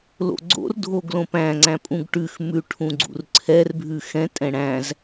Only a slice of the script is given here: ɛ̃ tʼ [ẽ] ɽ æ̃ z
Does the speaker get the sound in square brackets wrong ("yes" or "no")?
yes